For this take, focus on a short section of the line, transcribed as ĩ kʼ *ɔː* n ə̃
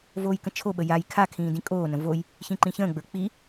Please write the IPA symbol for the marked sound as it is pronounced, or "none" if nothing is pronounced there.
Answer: oː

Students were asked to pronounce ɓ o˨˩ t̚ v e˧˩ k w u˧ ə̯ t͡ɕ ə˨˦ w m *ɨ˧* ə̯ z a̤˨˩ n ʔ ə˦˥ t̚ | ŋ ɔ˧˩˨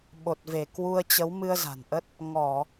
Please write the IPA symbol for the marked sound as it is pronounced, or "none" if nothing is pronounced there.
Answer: ɨ˧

